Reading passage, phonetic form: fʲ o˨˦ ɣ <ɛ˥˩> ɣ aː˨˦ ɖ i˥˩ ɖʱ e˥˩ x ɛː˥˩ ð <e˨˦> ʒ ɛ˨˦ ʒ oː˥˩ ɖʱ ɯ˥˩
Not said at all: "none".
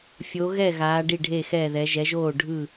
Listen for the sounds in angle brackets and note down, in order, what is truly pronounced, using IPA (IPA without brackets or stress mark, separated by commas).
ɛ˥˩, ɛ˨˦